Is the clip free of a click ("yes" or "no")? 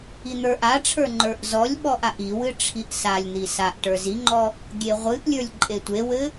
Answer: no